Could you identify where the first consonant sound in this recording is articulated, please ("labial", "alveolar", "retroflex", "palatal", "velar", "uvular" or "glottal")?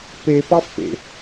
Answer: labial